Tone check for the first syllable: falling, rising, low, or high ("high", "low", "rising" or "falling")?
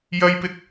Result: high